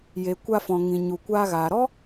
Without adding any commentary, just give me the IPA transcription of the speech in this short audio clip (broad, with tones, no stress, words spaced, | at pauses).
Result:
je˨kʷa˧fɔ̃˨ ŋĩ˨ɲu˨kʷaː˧ɣaː˨ ɾɔ˦